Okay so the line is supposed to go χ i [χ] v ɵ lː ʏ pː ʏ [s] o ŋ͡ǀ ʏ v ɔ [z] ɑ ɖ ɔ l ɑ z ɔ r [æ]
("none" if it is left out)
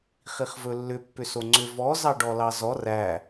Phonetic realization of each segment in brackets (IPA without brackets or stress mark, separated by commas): χ, s, z, æ